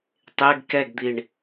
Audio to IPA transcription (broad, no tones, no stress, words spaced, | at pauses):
tˤeɡ kɛɡd̪iɳ